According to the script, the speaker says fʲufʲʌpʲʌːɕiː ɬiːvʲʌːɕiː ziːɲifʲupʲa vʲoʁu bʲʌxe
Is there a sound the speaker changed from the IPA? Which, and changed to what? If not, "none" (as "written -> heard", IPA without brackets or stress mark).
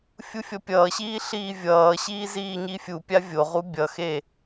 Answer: none